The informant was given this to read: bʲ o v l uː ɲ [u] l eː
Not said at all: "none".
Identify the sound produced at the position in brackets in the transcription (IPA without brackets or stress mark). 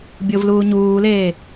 uː